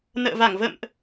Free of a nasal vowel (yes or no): yes